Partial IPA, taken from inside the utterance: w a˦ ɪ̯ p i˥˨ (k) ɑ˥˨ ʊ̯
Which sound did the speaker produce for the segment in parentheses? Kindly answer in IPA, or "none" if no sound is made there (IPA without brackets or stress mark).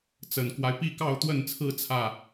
k